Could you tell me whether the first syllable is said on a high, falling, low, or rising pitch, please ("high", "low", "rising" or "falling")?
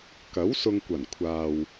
rising